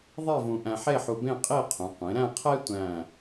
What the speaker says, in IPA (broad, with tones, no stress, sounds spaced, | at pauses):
ðˤ e˥˧ v ũ˧ ʔ æ̃˧ ħ e˥˧ ħ u˧ b ẽ˥˧ qʼ i˥˧ qʰ ũ˩˧ qʷ ẽ˩˧ ɾ æ̃˥˧ qʰ e˥ tʷ æ̃˥˧